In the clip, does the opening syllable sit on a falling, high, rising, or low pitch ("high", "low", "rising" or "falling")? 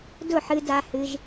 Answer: falling